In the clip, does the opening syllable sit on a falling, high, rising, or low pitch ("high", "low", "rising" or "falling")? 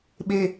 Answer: low